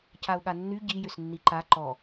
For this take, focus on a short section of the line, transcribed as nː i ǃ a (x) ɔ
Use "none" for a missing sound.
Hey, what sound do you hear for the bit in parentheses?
ǃ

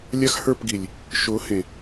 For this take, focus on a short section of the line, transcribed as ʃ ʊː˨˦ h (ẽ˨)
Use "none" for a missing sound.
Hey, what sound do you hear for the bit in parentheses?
ẽ˨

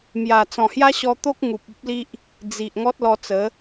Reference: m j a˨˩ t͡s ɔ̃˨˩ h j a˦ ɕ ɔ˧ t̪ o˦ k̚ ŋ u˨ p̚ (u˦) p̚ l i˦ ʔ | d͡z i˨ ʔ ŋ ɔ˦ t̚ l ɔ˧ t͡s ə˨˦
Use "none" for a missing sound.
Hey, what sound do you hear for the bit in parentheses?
u˦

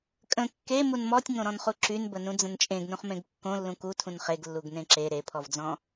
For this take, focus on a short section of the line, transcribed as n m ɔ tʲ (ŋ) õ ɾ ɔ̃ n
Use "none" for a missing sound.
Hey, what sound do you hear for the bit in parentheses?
ŋ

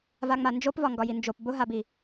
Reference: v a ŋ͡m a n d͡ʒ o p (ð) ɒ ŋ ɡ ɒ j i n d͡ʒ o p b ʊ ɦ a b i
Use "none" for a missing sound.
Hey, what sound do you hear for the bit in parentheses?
v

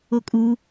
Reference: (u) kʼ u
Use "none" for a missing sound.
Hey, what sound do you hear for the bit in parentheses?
o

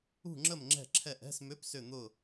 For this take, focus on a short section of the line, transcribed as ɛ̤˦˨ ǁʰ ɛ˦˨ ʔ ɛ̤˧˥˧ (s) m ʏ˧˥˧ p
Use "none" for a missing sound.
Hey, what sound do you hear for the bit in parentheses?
s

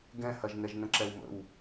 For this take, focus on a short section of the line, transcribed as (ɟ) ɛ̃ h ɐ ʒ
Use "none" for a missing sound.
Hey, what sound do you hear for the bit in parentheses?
ɡ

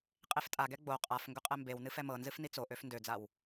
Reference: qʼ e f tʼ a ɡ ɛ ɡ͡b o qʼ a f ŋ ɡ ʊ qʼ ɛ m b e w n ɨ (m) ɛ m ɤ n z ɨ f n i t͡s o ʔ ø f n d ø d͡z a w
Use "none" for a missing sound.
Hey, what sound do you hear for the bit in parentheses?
f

